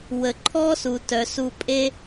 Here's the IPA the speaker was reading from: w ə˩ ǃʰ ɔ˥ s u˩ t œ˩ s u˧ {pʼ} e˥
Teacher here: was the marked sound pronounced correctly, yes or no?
yes